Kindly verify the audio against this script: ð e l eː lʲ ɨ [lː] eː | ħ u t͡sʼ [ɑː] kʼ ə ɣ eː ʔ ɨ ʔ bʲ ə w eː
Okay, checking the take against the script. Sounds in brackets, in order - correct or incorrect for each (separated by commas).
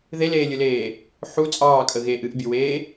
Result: incorrect, correct